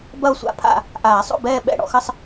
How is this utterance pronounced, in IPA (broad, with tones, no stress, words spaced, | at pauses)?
bɐ˥˨o̯sʷa̰˥˨pʰa̰˥˨ | ʔaː˨˩˦sˤo̰˥˨bɛː˥˨ ɓɛ̰˥˨ɽɔ̰˨˩˦xɐ˥˨sˤ